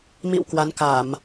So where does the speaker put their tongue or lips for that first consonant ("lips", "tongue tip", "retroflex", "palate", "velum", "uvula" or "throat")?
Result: lips